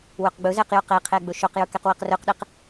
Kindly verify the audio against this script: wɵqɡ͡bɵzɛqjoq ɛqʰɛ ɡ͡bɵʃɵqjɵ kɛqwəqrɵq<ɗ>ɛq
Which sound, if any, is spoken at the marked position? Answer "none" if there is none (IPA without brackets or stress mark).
ɗ